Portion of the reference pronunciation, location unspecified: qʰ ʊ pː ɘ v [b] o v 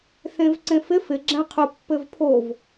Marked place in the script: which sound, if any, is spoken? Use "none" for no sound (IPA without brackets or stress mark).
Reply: pʰ